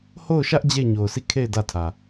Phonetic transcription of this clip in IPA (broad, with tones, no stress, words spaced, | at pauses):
ho˦˨ʊ̯ʃä˦ʔ d͡ʑe˦˨ɪ̯ɲo˨ʊ̯si˦˨kʰe˦˨ɪ̯ dä˦˨tʰä˨